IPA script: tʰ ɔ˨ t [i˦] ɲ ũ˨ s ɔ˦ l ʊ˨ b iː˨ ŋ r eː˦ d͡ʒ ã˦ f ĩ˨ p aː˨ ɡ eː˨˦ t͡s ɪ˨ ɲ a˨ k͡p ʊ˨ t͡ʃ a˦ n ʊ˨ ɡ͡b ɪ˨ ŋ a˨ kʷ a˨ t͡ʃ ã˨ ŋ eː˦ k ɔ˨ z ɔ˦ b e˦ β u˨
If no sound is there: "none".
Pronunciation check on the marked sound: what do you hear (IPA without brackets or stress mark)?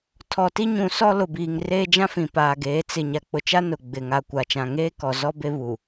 i˦